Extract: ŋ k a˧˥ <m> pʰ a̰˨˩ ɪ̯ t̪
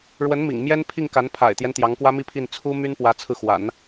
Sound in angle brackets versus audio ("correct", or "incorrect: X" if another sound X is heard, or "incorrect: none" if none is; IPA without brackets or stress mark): incorrect: n